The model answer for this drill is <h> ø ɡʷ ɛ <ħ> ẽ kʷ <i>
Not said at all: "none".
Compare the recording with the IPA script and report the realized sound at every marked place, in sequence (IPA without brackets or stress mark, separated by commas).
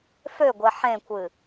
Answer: f, ħ, ɨ